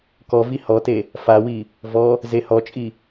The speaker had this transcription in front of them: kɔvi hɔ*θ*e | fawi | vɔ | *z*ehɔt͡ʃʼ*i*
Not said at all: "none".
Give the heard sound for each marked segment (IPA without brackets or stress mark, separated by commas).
t, z, i